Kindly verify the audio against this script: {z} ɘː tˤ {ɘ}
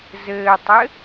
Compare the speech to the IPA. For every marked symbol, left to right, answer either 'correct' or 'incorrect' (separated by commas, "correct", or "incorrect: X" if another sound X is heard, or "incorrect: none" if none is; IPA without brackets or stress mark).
correct, correct